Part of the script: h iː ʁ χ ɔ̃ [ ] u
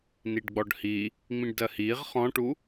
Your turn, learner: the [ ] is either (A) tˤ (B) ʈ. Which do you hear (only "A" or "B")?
B